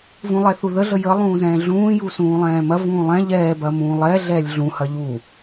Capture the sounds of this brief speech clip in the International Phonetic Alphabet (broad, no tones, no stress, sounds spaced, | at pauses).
v ũ lˠ ɛ θ u ð ə ɮ ə j ə lˠ ũː z ɛ̃ː ɮ ũː j u s ũː lˠ ɛ̃ː m ɐ v ũː lˠ ɛ̃ ʎ ɛː b ɐ m ũː lˠ ɛ ɮ ɛː lʲ ɮ ũ h ɐ ʎ u